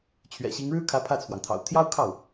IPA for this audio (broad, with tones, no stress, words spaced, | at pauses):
t͡ɕʰɥɛ̰˨˩ɕi˧˥ŋ ɻɻ̩˥kʰä˧˥ pʰä˥˩t͡sʰwɑ˩ŋt̪ʰɑ̰˨˩ʊ̯ t̪ʰjɑ˥ʊ̯kʰɑ˥˩ʊ̯